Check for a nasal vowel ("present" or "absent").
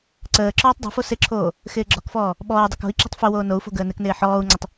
absent